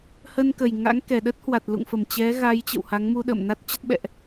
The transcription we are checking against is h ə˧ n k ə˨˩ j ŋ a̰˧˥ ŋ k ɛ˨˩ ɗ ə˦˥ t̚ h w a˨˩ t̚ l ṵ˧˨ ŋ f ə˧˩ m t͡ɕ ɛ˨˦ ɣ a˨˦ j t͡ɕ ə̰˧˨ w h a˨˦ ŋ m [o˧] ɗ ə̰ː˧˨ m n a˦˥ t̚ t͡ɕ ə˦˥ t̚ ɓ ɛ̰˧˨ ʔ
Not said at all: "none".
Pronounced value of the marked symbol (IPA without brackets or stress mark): u˧